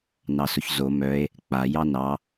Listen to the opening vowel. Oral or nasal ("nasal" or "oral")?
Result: oral